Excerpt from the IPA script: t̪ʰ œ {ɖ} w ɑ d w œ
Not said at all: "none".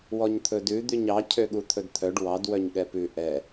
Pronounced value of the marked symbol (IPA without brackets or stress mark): ɖ